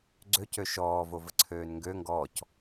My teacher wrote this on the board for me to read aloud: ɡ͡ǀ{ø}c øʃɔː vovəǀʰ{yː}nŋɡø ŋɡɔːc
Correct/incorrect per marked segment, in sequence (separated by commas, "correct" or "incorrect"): correct, incorrect